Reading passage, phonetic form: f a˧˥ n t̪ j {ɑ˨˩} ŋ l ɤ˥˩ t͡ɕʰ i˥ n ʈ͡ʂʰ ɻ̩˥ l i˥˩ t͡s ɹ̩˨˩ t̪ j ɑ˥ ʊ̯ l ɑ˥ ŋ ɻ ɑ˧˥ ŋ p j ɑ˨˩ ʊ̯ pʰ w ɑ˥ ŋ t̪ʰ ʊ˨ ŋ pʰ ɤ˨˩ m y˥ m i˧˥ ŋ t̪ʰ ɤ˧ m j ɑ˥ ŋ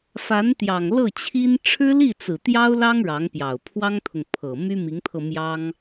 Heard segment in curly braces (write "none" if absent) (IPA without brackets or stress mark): ɑ˨˩